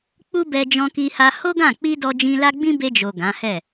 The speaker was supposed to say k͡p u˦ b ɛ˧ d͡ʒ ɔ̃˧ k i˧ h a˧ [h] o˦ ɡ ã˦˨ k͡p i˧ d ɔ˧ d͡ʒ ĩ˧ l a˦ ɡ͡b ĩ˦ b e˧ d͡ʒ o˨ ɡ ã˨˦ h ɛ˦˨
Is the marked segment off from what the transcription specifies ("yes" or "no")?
no